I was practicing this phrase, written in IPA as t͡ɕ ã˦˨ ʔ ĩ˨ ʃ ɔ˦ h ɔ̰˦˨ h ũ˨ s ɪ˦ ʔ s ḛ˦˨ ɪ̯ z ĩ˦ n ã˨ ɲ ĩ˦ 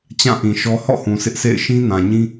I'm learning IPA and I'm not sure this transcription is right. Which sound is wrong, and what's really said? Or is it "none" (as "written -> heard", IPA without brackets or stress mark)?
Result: z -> ʃ